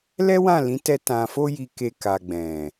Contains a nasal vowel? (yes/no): yes